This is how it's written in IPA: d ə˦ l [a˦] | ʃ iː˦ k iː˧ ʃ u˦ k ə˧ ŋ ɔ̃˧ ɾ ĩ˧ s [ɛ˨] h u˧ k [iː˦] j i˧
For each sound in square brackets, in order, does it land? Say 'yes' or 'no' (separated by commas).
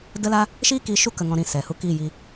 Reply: yes, yes, no